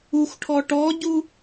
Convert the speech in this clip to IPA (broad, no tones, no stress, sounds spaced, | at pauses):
u xʷ ʈʰ ɔ ʈ ɔ ɟ u